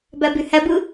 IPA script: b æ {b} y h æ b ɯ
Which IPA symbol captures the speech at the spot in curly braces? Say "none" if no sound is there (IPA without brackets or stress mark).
b